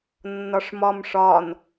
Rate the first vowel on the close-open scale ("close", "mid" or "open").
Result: open